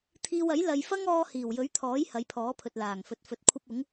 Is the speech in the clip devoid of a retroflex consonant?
yes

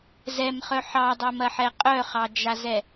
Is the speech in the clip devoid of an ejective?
no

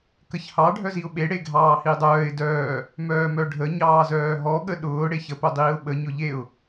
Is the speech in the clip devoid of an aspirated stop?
yes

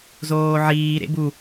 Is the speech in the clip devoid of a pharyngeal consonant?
no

